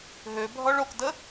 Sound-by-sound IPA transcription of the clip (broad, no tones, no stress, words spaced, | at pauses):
ɦøbʱɔɭ okdə